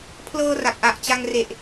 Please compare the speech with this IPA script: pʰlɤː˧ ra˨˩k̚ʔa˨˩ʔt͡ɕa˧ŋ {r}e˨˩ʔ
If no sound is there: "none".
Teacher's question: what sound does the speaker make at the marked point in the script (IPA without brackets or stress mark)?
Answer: r